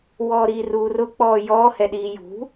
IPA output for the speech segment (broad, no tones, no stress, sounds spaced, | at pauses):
w ɔː ɾ iː r uː r ʊ k͡p ɔː j ɔː h ɛ ɗ iː j ṳ